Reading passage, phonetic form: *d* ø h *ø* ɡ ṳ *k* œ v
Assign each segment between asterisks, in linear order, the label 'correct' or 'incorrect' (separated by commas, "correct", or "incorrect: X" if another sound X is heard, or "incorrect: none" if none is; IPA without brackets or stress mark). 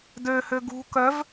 correct, correct, correct